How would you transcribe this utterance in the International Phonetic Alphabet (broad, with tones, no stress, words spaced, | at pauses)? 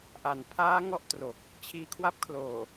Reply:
ʔa˩˦npʰaː˦˥ ŋɔ˥˩ʔ tro˨˩k̚ | t͡ɕʰiː˧kʰwa˥˩p̚kʰloː˨˩